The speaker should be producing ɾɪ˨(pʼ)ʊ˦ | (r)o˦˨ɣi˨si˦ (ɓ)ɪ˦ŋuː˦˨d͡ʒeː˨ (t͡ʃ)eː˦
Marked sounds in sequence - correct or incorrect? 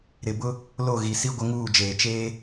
incorrect, incorrect, incorrect, correct

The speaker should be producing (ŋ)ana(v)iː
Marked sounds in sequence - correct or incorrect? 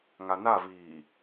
correct, correct

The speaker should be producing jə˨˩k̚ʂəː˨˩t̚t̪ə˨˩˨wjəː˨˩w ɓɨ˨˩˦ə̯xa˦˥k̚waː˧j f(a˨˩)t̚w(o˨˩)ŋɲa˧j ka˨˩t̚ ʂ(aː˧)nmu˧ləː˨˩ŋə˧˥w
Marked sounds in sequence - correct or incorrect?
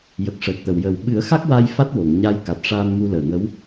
incorrect, incorrect, correct

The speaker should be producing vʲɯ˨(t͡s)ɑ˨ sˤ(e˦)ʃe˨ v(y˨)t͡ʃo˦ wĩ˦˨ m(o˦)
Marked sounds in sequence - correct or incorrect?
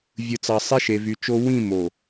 correct, correct, correct, incorrect

